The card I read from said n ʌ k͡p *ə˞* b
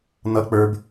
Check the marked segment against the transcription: correct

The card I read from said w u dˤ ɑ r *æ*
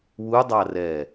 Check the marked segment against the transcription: incorrect: ɛ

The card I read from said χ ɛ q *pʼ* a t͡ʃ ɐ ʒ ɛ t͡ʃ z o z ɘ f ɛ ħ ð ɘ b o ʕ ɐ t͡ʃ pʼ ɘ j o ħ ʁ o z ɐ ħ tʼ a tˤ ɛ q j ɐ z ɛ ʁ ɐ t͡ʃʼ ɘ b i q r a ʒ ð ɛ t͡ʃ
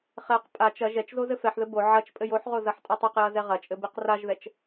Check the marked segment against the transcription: correct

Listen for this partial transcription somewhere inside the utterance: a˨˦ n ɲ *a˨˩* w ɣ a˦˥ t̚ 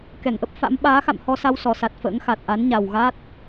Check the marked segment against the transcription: correct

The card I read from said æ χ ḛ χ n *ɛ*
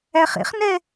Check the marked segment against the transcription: correct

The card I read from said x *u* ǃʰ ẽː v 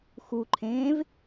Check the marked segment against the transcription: correct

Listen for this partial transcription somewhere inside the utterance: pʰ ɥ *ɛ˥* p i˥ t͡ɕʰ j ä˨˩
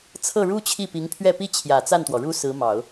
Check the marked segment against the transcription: incorrect: ɛ˥˩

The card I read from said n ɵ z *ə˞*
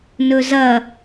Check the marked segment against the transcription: incorrect: ɐ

